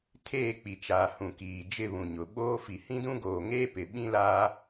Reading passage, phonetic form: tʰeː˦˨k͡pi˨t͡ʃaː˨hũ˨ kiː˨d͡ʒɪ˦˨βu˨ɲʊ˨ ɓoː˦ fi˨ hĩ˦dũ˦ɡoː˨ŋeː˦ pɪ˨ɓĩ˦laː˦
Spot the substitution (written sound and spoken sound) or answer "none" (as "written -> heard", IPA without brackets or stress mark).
u˨ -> ũ˨